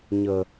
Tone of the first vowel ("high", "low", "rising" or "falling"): low